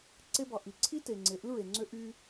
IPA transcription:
ǀ e˦ b ɑ˨ ʔ i˨ ǀʰ i˦ t e˨ ŋ͡ǀ e˨ ʔ ɯ˦ ɹ e˨ ŋ͡ǀ ø˦ ʔ y˦

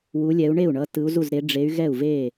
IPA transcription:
w u˨˦ lʲ ɛ˨˦ u̯ ɳ e˥˩ u̯ ɳ ʌ˨˦ t ɯ˨˦ u̯ z u˥˩ z ɾ e˨˦ ɖ͡ʐ e˨˦ y̯ ɣ ɛ˥˩ u̯ v e˥˩

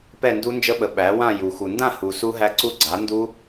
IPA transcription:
p ɛ˥˧ n d u˦˥ n d͡ʒ ə˦˥ ɓ ə˨˥ ɓ æ˨˥ w ã˥˧ j u˨ x u˨ n d ã˥˧ h u˨ s u˦˥ ɦ æ˦˥ ǀ u˦˥ ɡ͡ǀ a˨˥ n d u˦˥

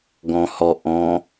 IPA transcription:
ɡ ɔ̃ h ɔ ʔ ɔ̃

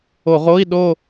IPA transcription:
o˧˩˧ ʁ o˧˥˧ i̯ ɗ o˥˧

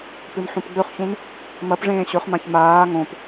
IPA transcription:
p ɨ n ħ ũ p ɡ͡b ɵ χ ç ũ n | m ɐ p ʐ ẽː ɕ ɵ χ m ã ç m aː ŋ õ p

